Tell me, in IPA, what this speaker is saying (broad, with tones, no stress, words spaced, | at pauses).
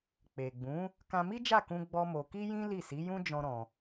k͡pe˨ɡ͡bũ˨˦ | kã˧mi˦d͡ʒa˦˨kũ˧ ɡ͡bɔ˦mo˧ ki˦jĩ˦ li˦˨si˨˦jũ˦ d͡ʒɔ̃˦ɾɔ̃˧